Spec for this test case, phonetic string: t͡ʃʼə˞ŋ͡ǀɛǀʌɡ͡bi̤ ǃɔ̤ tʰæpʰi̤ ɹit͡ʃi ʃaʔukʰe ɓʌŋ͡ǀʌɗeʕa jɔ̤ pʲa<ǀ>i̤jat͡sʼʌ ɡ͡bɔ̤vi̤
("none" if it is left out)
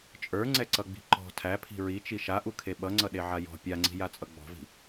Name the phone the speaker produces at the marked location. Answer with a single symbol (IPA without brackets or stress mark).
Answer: ŋ͡ǀ